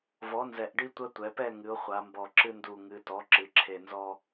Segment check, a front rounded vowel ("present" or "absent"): absent